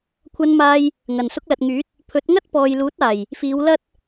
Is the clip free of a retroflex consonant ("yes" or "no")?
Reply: yes